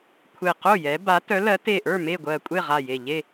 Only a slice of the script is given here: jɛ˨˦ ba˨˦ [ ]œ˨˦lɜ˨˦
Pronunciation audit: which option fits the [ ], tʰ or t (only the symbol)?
t